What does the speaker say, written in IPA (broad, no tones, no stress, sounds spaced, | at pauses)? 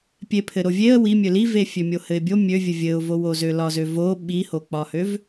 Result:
pʲ e pʰ ɘ ɾ o vʲ e ə̯ w i mʲ ø l i v e fʲ ø mʲ o h ɘ ɪ̯ bʲ o mʲ ø vʲ ɘ vʲ ɘ ʊ̯ v o w o z ø l ɒ z ø v o ɓ i h o k͡p ɒ h ø v